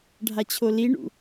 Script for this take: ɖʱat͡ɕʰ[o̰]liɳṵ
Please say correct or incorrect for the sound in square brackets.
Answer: incorrect: o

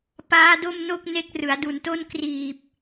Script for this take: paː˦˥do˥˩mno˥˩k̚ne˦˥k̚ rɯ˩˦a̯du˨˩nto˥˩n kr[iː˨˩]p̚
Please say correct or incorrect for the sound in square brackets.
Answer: correct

